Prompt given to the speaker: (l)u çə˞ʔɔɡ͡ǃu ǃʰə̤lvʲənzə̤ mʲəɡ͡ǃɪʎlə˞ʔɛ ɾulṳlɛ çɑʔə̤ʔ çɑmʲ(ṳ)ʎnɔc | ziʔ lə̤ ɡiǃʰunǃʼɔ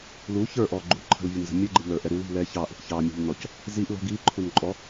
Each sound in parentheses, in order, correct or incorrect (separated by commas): correct, correct